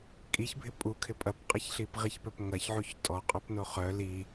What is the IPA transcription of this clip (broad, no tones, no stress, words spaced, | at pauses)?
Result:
kʼiçbʱɪ pʼukʰɪ pʼɐpqʼɐçɬip ʁiçpœpŋɐçʕuç tʼɔ qʼøpnoχœ li